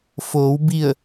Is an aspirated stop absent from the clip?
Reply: yes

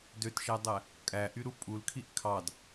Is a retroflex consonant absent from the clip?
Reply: yes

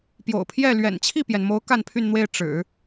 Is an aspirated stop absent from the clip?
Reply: no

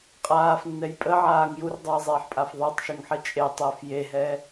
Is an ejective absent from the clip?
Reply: no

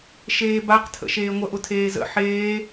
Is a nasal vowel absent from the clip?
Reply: yes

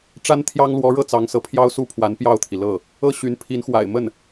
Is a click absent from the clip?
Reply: yes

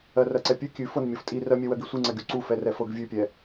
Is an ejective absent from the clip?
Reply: no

